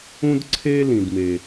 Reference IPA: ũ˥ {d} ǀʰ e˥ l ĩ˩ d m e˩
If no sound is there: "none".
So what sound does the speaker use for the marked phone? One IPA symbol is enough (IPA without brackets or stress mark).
d